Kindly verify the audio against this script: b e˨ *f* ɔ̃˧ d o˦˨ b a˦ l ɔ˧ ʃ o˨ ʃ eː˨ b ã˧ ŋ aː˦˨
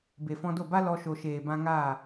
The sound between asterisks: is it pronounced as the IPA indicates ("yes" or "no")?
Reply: yes